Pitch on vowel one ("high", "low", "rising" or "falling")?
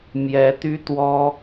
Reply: rising